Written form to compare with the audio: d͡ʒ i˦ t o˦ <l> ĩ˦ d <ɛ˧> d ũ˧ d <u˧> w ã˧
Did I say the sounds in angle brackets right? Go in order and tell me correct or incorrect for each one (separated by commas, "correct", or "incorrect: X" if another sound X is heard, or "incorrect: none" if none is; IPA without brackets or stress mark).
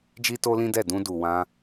correct, incorrect: ɛ˦˨, incorrect: u˨